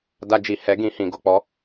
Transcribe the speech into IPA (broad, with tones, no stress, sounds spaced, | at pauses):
d a˧ d͡ʒ i˨ h ɛ˨˦ ɡ ĩ˧ h ĩ˨ ɡ o˨ k͡p ɔ˨˦